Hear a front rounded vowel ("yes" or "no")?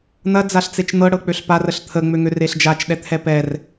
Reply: yes